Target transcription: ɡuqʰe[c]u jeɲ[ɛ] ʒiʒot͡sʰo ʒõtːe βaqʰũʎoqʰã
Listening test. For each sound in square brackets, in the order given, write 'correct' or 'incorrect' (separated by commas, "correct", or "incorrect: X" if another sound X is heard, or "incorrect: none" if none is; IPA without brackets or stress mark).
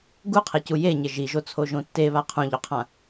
correct, incorrect: ɪ